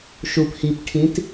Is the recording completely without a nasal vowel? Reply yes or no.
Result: no